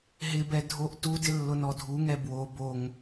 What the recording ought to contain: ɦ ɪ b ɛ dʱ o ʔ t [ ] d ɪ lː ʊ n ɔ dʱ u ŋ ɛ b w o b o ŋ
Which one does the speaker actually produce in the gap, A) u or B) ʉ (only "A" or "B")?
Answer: A